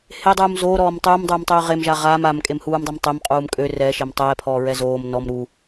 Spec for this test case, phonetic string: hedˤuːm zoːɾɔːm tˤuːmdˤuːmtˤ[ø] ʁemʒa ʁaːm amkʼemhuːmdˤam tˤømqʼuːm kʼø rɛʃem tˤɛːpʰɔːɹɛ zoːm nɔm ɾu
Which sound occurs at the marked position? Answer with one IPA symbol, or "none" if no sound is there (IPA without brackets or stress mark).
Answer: øː